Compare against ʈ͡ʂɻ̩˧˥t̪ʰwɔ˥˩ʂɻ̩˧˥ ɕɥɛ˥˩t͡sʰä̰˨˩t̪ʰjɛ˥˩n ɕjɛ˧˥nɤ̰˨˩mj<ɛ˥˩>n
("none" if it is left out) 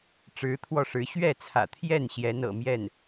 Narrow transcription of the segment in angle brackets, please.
ɛ˥˩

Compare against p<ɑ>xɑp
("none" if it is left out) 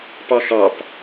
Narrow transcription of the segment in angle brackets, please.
ɑ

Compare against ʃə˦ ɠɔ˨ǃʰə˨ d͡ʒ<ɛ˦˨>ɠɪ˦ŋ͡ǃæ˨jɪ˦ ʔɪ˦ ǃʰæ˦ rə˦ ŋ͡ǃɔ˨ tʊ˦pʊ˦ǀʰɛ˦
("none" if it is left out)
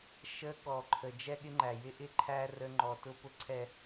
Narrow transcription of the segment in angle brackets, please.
ɛ˦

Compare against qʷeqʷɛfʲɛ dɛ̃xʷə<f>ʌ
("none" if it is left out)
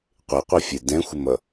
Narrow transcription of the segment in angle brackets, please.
m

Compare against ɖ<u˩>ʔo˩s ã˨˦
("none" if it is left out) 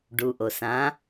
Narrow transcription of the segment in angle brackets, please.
u˩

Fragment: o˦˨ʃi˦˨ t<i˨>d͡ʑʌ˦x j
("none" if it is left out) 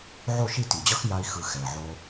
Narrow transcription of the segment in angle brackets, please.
i˨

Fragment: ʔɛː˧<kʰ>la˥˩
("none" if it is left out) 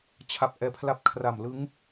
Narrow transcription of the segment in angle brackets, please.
pʰ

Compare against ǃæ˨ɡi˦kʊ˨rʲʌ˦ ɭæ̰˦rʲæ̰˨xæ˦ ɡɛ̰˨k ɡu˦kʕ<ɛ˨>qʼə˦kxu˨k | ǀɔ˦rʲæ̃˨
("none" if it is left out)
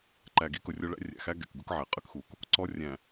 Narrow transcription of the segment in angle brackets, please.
ɛ˨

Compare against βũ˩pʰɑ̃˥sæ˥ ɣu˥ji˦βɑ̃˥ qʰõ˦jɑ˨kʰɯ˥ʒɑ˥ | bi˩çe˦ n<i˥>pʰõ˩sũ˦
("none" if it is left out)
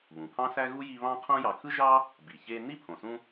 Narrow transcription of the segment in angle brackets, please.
i˥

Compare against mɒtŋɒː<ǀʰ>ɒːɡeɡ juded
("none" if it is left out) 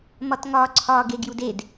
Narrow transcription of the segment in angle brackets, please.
ǀʰ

